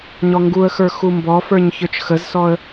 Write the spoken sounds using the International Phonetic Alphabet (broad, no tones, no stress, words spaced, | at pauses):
ɲɔŋɡuə̯xə˞ xumbɔfə˞ɲ çə˞t͡ʃxəzsɔə̯